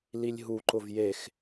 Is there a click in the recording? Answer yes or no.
yes